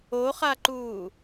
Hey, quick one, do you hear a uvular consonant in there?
yes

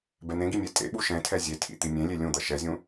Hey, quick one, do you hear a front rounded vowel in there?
no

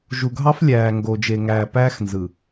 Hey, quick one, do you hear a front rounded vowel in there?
no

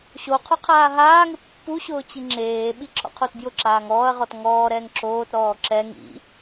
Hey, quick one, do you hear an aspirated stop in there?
yes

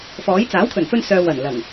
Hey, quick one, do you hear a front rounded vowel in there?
yes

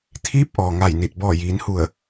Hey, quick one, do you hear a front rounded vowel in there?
no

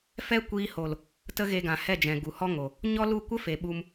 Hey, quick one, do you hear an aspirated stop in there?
no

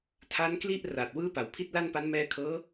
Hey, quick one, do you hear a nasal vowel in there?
no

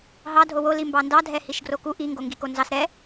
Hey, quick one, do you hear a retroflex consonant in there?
no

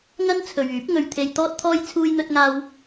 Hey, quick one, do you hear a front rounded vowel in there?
yes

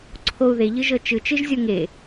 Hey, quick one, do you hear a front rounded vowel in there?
no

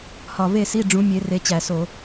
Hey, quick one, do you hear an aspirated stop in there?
no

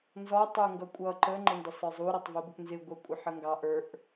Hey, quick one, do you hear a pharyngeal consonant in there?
yes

